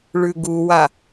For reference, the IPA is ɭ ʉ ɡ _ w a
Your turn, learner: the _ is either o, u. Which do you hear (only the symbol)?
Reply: u